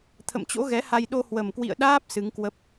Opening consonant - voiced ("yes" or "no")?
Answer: no